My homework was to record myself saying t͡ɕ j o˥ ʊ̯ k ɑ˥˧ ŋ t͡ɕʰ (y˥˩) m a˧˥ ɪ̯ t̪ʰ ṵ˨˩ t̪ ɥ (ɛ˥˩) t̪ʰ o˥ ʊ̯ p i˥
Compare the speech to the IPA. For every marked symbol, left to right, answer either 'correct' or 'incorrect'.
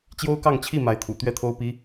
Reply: incorrect: i˥˩, correct

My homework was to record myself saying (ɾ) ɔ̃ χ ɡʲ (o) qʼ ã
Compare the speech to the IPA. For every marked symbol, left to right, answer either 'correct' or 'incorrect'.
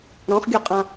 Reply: correct, correct

